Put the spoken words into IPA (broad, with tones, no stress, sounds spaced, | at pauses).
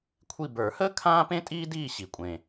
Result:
kʷʰ i˦˨ b ə˞˨˩˦ h əː˥ kʰ ãː˥ p ẽ˥ tʼ iː˥ d iː˦˨ ɕ i˨˩ kʷʼ ẽː˨˩